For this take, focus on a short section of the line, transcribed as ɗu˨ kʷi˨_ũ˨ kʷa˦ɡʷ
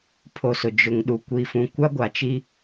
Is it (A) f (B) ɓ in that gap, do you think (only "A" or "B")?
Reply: A